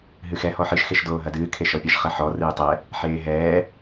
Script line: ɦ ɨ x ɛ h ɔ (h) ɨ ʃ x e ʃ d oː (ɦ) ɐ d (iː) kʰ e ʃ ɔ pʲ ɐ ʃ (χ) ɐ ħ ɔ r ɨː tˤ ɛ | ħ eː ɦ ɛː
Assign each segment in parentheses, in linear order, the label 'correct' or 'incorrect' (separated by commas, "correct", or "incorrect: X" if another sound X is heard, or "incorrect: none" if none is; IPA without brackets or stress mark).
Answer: incorrect: ħ, correct, incorrect: ɨː, correct